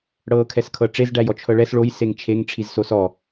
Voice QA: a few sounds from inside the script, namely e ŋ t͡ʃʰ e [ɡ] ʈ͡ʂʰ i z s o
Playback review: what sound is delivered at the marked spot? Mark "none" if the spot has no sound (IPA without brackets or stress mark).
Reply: ŋ